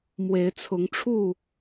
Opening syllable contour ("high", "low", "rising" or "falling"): rising